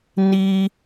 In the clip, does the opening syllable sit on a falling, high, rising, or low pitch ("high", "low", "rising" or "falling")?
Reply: high